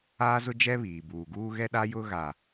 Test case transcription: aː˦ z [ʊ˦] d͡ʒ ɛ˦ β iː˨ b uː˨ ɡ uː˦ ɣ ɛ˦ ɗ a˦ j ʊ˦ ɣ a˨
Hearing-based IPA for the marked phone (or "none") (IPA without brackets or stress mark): ʊ˦